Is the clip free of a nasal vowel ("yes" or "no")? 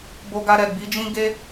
no